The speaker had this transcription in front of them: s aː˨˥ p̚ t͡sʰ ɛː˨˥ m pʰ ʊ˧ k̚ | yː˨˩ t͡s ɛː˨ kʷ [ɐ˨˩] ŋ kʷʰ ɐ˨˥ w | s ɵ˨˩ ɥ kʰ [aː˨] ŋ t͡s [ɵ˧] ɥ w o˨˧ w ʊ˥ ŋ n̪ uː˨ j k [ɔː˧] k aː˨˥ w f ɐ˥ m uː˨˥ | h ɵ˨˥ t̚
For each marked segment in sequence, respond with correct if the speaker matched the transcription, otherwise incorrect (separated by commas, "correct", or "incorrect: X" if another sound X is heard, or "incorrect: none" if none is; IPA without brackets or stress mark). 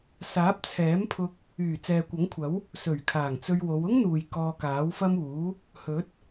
incorrect: ɐ˨˥, incorrect: aː˨˩, correct, correct